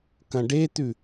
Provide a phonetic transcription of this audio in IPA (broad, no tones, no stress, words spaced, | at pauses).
kɐ̃ɖet̪ʉ